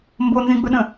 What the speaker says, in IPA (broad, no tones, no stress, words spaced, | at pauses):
mbonzĩɡ͡bɵɗə̃